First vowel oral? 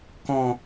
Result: no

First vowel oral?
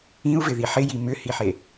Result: no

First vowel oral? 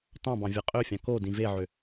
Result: no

